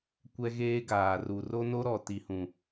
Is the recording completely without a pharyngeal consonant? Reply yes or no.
yes